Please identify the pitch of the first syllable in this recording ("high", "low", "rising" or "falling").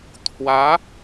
rising